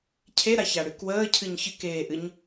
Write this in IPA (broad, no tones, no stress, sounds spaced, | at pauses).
cʰ e ɾ a ç a ɽ ɨ k w əː cʰ ɨ ɲ ç ɨ k eː ʔ ɨ ɲ